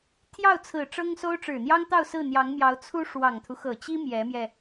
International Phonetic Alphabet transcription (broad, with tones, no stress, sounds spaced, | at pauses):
t̪ʰ j ɑ˥˩ ʊ̯ t͡sʰ ɹ̩˨˩ ʈ͡ʂ ɤ˥ ŋ s o˥ ʊ̯ ʈ͡ʂ ɻ̩˨˩ n̪ j ɑ˥ ŋ t̪ ɑ˥˧ ʊ̯ s ɹ̩˥˩ n̪ j ɑ˧˥ ŋ m j ɑ˧˥ ʊ̯ t͡sʰ u˥ ʂ w ɑ˨˩ ŋ t̪ʰ u˦ x ɤ˨˩ t͡ɕ i˥ m j ɛ˧˥ m j ɛ˧